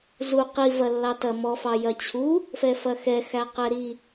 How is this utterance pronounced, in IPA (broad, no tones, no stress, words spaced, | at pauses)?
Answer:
zu qivɐlːɑtɐ mɔfɑ jɐt͡ɕʰu | fɛfɐxɛxæ qɛɾi